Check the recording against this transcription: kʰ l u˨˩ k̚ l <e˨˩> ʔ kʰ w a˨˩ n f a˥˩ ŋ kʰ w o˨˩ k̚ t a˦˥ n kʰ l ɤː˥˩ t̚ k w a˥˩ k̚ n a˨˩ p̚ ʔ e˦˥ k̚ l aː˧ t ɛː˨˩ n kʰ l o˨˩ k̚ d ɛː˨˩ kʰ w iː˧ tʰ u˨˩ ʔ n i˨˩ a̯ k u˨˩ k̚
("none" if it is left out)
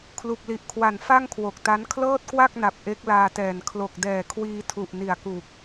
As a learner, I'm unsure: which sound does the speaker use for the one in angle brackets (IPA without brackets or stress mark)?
i˨˩